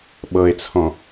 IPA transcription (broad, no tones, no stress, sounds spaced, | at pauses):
ɓ ɤ e̯ t͡sʰ ɔ̃